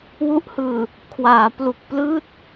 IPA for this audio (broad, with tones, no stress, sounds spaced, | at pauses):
w u˦˥ ʔ h ɯː˨˩ | kʰ w aː˩˦ p l u˨˩ k̚ p l ɯː˥˩ t̚